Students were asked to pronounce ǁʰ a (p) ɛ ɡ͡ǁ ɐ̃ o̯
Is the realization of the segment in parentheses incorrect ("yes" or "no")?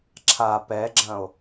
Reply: no